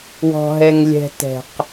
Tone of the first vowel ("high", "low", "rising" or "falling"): high